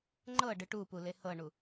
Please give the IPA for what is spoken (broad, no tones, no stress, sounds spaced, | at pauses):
ŋ͡ǃ ɤ ɖ ɯ ʈ u p u l e h ɤ ɳ u